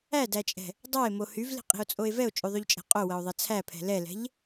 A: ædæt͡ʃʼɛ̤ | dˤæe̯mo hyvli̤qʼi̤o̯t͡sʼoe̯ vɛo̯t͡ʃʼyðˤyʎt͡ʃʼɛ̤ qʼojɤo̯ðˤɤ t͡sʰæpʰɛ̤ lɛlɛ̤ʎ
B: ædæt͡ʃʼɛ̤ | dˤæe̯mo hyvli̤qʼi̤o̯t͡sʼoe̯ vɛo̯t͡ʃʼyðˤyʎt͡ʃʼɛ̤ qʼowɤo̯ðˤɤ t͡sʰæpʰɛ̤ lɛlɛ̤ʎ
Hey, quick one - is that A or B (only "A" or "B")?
B